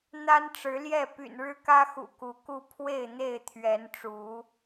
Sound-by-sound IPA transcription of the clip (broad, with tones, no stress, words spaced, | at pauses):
n̪a˦nʈ͡ʂɻ̩˨˦ljɛ˥˨ py̰˨˩nɻɻ̩˦kä˦ xṵ˨˩ku˨˦ku˥˨ pʰwe˥˨ɪ̯n̪e˥˨ɪ̯t̪ʰɥɛ˨˦nʈ͡ʂu˨˦